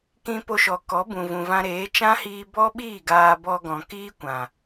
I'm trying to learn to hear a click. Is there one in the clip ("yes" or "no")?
no